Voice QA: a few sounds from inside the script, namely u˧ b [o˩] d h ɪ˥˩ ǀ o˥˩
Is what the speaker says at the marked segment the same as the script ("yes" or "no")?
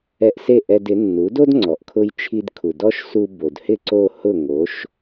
yes